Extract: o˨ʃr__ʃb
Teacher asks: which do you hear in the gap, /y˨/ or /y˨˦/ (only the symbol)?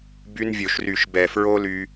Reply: y˨